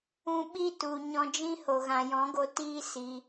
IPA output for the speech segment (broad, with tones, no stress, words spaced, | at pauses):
ũ˧ɓi˦tu˨ ɲɔ̃˧d͡ʒĩ˦ho˨ ɣã˨jɔ̃˨˦ɡo˧ tiː˦ si˧